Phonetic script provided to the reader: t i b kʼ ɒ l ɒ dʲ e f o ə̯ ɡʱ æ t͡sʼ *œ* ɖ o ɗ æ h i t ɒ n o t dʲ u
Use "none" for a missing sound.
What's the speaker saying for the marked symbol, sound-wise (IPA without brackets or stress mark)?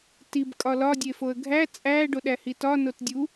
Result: æ